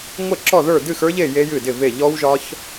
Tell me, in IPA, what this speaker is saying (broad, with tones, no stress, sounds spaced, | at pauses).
ŋʷ ɛ˥˨ ǁ ɔ˥˨ ð ə˞˥˨ d ɨ˥˨ x ə˞˦˥ ʎ e˥˨ j e˦˥ j ɨ˥˨ d ɪ˥˨ v e˥˨ ʎ ɔ˦˥ w ʒ ɒ˦˥ ç